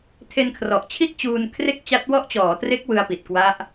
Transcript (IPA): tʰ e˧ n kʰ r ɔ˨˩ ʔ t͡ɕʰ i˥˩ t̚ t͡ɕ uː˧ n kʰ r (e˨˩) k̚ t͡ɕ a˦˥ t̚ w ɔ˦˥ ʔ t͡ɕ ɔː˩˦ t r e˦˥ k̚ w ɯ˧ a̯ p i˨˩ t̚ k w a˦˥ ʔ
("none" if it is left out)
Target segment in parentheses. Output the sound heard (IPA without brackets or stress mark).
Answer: e˥˩